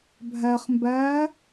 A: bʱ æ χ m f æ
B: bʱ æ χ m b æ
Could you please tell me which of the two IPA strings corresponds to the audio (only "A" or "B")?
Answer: B